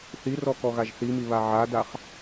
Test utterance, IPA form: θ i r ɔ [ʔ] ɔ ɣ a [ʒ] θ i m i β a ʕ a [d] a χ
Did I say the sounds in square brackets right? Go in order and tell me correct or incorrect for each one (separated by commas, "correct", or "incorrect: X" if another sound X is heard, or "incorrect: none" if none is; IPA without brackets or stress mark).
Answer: incorrect: k, correct, correct